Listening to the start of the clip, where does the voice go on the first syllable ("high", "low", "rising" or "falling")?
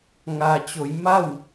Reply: low